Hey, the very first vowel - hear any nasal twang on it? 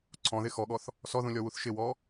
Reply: yes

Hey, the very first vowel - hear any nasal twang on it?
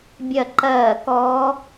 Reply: no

